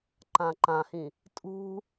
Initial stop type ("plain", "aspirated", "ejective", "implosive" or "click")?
click